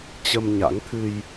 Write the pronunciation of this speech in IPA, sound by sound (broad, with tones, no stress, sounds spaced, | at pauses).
t͡ɕ ə˧ m ɲ a̰˧˥ ŋ t̪ʰ ɨ˧ j